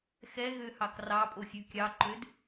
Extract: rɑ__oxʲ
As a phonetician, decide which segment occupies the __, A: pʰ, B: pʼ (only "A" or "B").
B